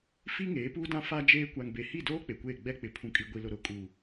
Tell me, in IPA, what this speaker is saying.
f i˦ ŋ eː˨˦ p uː˦ d ã˦ f a˦ d͡ʒ eː˦ kʷ a˨ ŋ b e˨ h i˦˨ d oː˦ k͡p e˨ kʷ eː˦˨ ɡ͡b ɛ˦ k͡p ɪ˨ pʰ ũ˨ kʼ i˨ ɡʷ i˨ l ʊ˨ ɾ ʊ˨ kʼ u˨

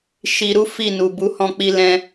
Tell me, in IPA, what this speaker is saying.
ʃ i˧ ɾ u˦ f i˦˨ n u˨ b u˨˦ h ɔ̃˧ k͡p i˧ l ɛ̃˧

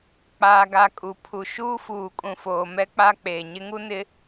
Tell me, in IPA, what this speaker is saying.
k͡p aː˨ ɡ a˨ kʼ u˨ pʰ u˨ ʃ uː˦ f uː˨ kʼ ũ˨ f oː˨ m ɛ˦ k͡p a˦ k͡p eː˨ ɲ ɪ˦ ŋ u˦ n ɪ˨˦

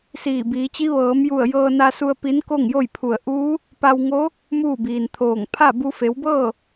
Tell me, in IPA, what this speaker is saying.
s iː˧˩ b iː˩˧ t͡ɕ i˧˥ ʋ ɤː˩˧ m j u˧˩ ə̯ j ɤː˧ n a˧ s u˧ ə̯ p i˧˥ n k o˥˨ ŋ j o˥˨ j pʰ u˧˩ ə̯ ʔ uː˧˥ | p a˧ w ŋ o˧˥ | m uː˥˨ b iː˩ n t̪ʰ oː˧˩ ŋ pʰ a˥˨ b u˧ f e˩˧ w b ɤː˥˨

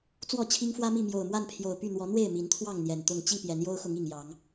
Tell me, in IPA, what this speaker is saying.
t͡s w ɔ˥˨ t͡ɕʰ i˦ ŋ f w ä˦ m i˥˨ m j o˨˩ ʊ̯ m w a˥˨ n pʰ j o˨˩ ʊ̯ p y˥˨ n̪ w ɔ˨˦ n̪ w e˥˨ ɪ̯ m i˨˦ n t̪ʰ w ɑ˥˨ ŋ n̪ j ɛ˨˩ n t̪ ʊ˥˨ ŋ t͡ɕ i˥˨ p j ɛ˨˦ n j o˦ ʊ̯ x ʊ˨˦ ŋ i˨˩ ŋ j ɑ˨˦ ŋ

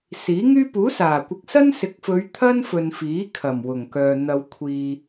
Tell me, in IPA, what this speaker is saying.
s iː˨˥ ŋ yː˥ p uː˨˥ s aː˨˩ kʷ ɪ˨ k̚ s ɐ˥ n s ɪ˨˥ k̚ f ɵ˨˧ ɥ t̪ʰ ɐ˥ n f ɵ˨ n f iː˨˥ kʰ ɐ˨˩ m w ʊ˨˩ ŋ k œː˨ n̪ ɐ˧ w kʷʰ iː˧

